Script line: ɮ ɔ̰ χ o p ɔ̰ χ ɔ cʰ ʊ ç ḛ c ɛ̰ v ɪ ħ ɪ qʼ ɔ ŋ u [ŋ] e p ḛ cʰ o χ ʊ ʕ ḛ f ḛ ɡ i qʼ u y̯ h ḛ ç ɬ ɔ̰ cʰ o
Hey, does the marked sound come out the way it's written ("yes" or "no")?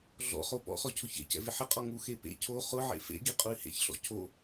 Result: no